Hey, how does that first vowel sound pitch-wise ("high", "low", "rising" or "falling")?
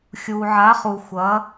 low